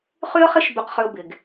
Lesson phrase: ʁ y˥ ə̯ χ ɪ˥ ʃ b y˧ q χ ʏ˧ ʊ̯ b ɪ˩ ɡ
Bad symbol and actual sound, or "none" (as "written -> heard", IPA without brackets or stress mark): ʁ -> χ